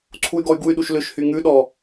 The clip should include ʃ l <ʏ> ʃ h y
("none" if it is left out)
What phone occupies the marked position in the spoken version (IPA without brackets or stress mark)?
ʏ